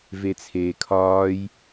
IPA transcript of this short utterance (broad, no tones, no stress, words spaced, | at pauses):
vet͡sʰeːkʰɒːj